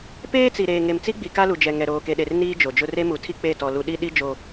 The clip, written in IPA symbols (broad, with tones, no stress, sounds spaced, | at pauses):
p eː˦ t͡s i˨ ɾ eː˨ ŋ e˨ m t͡s i˦ ɡ͡b i˨ k a˦ l u˨ d͡ʒ ɛ˨ ŋ ɛ˨ ɾ oː˨ k e˨ ɗ e˨ r n iː˦ d͡ʒ o˨ d͡ʒ ʊ˦ r e˦ m u˨ tʰ i˦ k͡p e˦˨ t ɔ˨ l u˨ ɗ i˦ ɗ i˦ d͡ʒ o˦